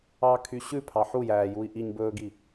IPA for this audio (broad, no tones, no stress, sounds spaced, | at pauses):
ɑ kʰ y ɕ ʉ pʰ ɑ ħ u j æː j u i̯ ʔ i ɲ b ɵː ɡ i